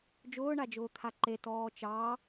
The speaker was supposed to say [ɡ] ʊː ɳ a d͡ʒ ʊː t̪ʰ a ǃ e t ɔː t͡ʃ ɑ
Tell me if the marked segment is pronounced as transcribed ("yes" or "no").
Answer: no